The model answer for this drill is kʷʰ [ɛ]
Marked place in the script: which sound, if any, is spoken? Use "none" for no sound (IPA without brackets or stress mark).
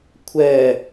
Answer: ɛ